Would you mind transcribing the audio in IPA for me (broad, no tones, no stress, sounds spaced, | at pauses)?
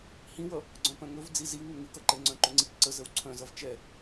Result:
h ĩ w ʌ | ɡ͡ǀ œ̃ p œ̃ ŋ ɵ v d͡z i z i w ŋ ɵ ŋ ɨ k ʌ ǃ ɛ ŋ͡ǀ œ̃ ǃ ɵ ŋ͡ǀ i k ǀ ə z ə w ǀʰ œ̃ z ʌ v t͡ʃ ɛ